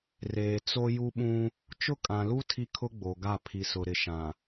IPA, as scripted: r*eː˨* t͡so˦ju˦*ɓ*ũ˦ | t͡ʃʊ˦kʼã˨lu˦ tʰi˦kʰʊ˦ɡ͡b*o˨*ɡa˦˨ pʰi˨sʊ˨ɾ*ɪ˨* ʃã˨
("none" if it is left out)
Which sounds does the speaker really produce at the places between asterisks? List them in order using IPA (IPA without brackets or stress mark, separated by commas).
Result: eː˨, ɓ, o˨, ɪ˨